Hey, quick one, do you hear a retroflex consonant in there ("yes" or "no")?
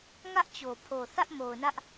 no